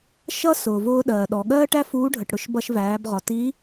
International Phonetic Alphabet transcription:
ʃ ʌ˥ s ʊː˩ v ʊː˧ ɗ ɜː˩ ɗ ɔ˩ ɠ ɜː˥ ʈ æ˥ f uː˧˥ ɖʱ ə˩ ʈ ɽ ʊ˧ ʃ b ʌ˧ ʃ v æː˩˧ b ʁ ɒ˩ t i˧˥

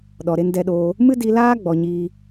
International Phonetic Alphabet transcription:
ɗ ɔ˨ ɾ e˧ n d ɛ˧ ɗ oː˧ | m ɨ˦ d i˧ l aː˦ ɡ͡b ɔ˧ ɲ iː˦

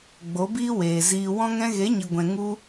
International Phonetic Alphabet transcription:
ɡ͡b o˨˦ b iː˦ w eː˨ z iː˧ w ɔ̃˧ ŋ ɛ̃˧ ɣ e˨˦ ɲ i˨ ɡʷ ɛ̃˨ ŋ u˧

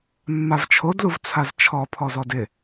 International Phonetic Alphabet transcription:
mː a v t͡ʃʰ o d l u v t͡sʰ a z t͡ʃʰ ɔ pʰ ɔ z ɔ d ɪ

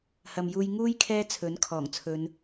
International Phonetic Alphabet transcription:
h ɐ˨ m j uː˧ j ŋ uː˥ j kʰ ɛː˥ t͡sʰ ɵ˨˥ n kʰ ɔː˨˩ ŋ t͡sʰ ɵ˨˧ n

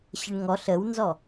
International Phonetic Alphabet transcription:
ɕ ə ɳ ŋ ɔ ɬ ə w n z ɔ

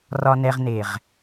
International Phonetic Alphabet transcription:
r ɒ˨ n ɛ˨ ʁ n e˨ ʁ

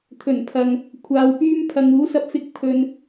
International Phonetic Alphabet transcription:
t̪ʰ ɵ˨˩ n pʰ ɐ˨ ŋ | kʷʰ aː˨ w p yː˧ m pʰ ɐ˨ ŋ uː˨˥ s ɐ˧ p̚ f ɪ˧ k̚ pʰ ɵ˨ n

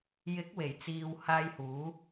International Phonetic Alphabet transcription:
j ɪ˨˥ k̚ w e˨˩ j t͡s iː˨ w h aː˧ j h uː˨˥

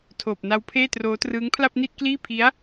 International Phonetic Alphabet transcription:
tʰ oː˨˩ p̚ n a˦˥ w pʰ eː˥˩ t r oː˦˥ t r ɯː˦˥ ŋ pʰ l a˥˩ p̚ n i˥˩ t̚ k l iː˥˩ pʰ i˦˥ a̯

